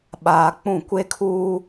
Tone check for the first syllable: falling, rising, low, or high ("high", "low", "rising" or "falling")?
low